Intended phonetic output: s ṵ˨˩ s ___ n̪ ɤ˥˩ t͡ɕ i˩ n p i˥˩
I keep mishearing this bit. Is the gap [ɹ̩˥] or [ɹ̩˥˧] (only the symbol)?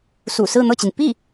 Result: ɹ̩˥˧